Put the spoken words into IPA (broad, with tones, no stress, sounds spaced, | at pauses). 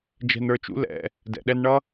d͡ʒ ɛ̤˧ n ə˞˧ t͡ʃ ṵ˦ l ɛ̰˧ | d ɛ̰˨ ɗ ɛ˧ n ɳ ʌ˦